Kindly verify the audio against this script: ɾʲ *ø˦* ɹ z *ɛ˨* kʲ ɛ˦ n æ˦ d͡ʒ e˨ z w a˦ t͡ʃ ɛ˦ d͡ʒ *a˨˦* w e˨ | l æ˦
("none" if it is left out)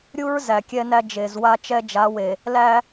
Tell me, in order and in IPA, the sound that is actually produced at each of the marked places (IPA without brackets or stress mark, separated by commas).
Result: u˦, æ˨, a˨˦